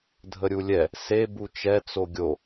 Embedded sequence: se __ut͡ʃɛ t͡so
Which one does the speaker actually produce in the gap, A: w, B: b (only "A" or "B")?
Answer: B